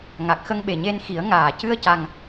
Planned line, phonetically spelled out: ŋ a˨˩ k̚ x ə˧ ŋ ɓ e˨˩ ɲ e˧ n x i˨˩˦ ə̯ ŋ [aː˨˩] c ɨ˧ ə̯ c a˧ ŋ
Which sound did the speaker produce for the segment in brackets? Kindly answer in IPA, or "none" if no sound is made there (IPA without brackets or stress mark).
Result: aː˨˩